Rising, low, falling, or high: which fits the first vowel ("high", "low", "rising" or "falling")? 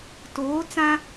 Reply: rising